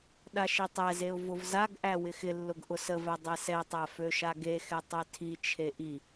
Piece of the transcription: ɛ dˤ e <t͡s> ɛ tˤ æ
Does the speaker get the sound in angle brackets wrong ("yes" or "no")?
yes